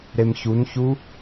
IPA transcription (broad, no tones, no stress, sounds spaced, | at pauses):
ɾ e m ç u n ç u